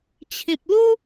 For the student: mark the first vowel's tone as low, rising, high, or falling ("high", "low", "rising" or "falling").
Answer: low